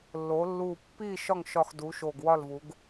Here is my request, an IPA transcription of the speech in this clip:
lː o˩˧ lː u˨˩ pː i˦˨ ʃ ɒ˦˨ ŋ ʃ ɒ˨˩ x d u˩˧ ʃ o˨˩ ɡ w ɒ˦˨ l v u˩˧ ɡ

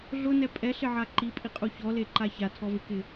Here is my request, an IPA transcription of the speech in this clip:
ɮ ʊ n ɛ pʼ ɛ ɬ ɪ ʕ a ǃ i pʼ i qʼ u ç ɔ l e ǃ a ç a tʰ ɔ v ɪ k ɪ

